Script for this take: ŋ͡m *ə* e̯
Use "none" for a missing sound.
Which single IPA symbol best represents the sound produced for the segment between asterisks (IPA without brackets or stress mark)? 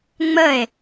ə